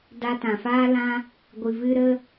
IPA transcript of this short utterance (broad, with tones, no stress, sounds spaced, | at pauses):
d a˧ t ã˨ f aː˦ l ã˦ | ɡʷ ɨ˨ v ɨ˧ ɾ ə˦